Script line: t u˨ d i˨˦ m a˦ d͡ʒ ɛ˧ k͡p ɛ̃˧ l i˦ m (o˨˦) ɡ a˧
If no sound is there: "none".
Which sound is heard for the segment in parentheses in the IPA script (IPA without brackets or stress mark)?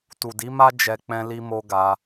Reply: o˦